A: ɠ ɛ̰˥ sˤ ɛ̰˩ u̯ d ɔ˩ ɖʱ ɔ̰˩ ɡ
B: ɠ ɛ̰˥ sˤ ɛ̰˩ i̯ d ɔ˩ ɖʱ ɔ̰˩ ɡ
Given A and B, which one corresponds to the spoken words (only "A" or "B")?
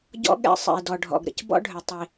B